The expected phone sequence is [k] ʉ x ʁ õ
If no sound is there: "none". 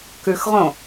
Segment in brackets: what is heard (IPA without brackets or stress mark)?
k